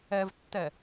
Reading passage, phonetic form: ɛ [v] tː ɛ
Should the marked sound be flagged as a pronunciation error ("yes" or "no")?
no